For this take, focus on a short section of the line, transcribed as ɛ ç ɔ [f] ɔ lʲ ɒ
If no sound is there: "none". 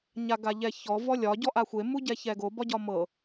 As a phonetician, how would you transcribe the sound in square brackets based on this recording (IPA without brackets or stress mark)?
v